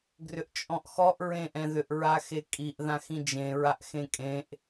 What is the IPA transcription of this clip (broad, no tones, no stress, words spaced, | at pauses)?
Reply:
ɡrʏʔt͡ʃʼɔ̃ʔxɔʔ ɹẽʔɛ̃ðʏʔ ɹaxekʼiʔ ðãxĩd͡ʒẽ ɹaʔxẽkʼẽʔ